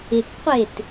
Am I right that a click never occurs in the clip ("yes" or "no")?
yes